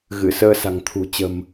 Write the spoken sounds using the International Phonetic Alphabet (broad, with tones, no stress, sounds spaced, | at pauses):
ɣ ɨ˧˩ s əː˧ s a̤˨˩ ŋ t̪ʰ ṳ˨˩ t͡ɕ ə̤˨˩ m